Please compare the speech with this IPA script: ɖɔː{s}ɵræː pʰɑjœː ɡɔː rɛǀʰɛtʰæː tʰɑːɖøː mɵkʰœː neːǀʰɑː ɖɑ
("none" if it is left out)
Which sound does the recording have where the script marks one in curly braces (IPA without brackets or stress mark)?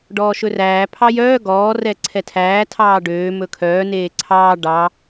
ʃ